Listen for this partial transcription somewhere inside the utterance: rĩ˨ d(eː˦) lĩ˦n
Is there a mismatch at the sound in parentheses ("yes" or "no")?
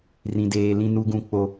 yes